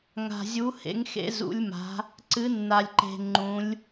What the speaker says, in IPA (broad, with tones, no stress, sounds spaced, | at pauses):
ŋ a̤˧ zʲ u˧˥ h ḛ˧˥ ŋ x ḛ˧˥ z ṵ˧˥ lʲ m a̤˧˥ | ǀ ɨ˧˥ nː a˧ lʲ ǃ e̤˧ ŋ͡ǃ ũ˧˥ lʲ